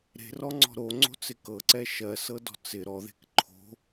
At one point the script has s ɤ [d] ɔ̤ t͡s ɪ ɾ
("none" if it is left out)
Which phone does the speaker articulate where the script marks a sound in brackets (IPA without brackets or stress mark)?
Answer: d